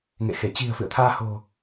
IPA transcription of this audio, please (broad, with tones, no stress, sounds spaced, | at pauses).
ŋ ḛ˧˨ x e˧˩ t͡ɕ i̤˨˩ ə̯ f ɨ̰˧˨ ə̯ t̪ʰ aː˧ h o̤˨˩